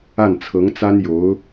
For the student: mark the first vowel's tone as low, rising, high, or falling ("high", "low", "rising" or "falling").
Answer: falling